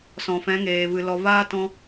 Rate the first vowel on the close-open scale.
mid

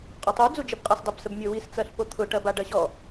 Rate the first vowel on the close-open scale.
mid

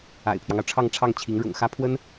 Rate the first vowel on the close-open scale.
open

